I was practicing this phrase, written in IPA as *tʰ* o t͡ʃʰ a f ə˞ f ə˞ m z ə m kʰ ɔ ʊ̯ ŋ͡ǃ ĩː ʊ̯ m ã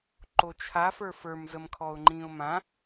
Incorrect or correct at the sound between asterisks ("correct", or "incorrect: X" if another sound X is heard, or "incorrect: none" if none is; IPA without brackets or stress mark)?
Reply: incorrect: ǃ